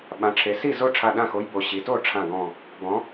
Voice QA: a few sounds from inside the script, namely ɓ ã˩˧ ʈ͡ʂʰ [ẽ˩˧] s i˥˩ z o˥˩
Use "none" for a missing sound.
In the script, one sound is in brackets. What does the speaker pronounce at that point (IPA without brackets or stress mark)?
e˩˧